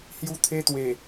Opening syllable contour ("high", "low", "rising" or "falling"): high